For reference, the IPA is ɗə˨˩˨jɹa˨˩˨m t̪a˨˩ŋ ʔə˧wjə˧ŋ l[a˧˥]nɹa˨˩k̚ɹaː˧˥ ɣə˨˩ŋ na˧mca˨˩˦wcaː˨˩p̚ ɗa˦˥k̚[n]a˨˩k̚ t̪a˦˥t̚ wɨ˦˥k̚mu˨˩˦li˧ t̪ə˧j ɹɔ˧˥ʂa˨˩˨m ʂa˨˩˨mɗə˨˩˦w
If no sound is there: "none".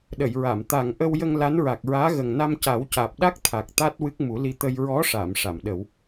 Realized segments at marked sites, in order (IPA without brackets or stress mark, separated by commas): a˧˥, t̪ʰ